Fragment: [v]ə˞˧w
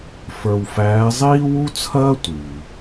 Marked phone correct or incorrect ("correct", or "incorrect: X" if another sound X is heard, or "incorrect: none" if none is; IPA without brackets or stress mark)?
incorrect: f